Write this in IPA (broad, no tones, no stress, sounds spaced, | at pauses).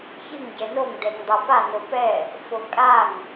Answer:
ç ɨ ŋ ɟ ɛ n o ŋ d ɛ ŋ dˤ a p a n o p ɛ | f o kʼ a ŋ